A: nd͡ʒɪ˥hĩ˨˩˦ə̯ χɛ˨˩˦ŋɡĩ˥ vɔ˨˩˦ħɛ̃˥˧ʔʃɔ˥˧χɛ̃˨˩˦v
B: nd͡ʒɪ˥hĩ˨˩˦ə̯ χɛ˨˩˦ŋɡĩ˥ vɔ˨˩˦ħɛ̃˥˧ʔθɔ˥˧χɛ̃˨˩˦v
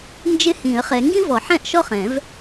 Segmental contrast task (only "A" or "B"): A